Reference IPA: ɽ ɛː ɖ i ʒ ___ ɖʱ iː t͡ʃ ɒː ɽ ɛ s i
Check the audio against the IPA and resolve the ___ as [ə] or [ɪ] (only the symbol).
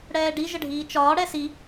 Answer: ə